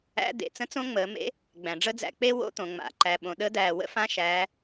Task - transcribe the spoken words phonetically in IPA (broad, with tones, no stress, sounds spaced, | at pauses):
æ̰˧˥ d̪ ḛ˩ t͡s ə̃˥ t͡s õ˥ ŋ͡m əː˩˧ m ḛ˧˥ | ɡ͡b æ̃˩ ɖ͡ʐ ə˥ d͡z æ̰˧ k͡p e˥ w o̰˥ t̪ õ˩ ŋ͡m a̰˩˧ ǃ æ˩ ɓ õ˩ ɗ ə˧˥ d̪ æː˩ w ə̰˥ f ã˧˥ ʃ æː˩˧